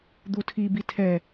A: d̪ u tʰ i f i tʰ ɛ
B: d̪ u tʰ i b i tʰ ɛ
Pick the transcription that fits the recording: B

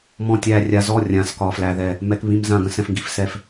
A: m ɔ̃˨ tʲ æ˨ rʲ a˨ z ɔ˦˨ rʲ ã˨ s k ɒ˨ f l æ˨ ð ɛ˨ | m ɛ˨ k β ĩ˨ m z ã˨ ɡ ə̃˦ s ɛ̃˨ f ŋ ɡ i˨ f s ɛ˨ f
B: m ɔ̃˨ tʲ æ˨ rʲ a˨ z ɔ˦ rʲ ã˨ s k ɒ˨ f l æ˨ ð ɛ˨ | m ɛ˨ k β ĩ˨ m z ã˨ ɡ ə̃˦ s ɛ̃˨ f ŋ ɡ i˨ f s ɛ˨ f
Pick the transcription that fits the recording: A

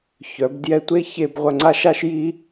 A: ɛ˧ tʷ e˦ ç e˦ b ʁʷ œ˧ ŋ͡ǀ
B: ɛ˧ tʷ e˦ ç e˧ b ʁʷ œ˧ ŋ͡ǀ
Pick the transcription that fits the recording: B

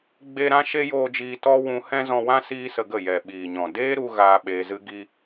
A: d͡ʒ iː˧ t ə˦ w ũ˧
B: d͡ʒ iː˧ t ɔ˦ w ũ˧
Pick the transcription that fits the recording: B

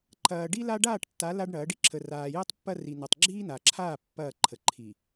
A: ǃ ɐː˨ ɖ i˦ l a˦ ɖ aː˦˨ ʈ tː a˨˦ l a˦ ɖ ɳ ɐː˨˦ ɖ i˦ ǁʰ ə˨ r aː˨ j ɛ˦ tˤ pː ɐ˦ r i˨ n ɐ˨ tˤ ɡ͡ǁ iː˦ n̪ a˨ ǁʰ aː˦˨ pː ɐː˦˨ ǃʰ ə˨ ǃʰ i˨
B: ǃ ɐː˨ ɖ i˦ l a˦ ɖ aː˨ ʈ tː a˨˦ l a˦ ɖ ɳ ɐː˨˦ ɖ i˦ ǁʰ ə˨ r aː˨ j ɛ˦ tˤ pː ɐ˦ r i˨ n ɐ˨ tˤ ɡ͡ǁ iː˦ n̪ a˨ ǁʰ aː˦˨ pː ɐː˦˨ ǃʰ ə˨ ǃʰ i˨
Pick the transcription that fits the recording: A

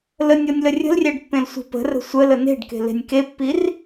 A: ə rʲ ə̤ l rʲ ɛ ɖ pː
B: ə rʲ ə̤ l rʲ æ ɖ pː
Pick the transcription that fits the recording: B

